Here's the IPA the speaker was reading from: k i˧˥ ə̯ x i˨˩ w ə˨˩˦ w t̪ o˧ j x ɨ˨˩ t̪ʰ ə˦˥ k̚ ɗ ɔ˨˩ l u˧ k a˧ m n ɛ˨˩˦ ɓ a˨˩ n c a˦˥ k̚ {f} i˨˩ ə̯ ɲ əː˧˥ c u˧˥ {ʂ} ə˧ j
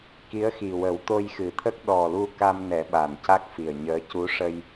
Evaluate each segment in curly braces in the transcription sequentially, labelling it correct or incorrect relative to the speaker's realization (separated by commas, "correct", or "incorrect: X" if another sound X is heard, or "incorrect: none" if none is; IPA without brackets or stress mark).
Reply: correct, correct